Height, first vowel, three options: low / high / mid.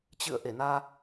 high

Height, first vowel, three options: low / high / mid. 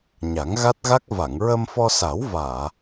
low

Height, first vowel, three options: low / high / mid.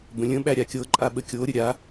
mid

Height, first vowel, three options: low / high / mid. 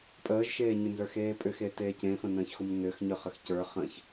mid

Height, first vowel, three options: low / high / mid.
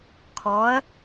mid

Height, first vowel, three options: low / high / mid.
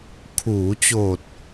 high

